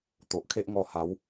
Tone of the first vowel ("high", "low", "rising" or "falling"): low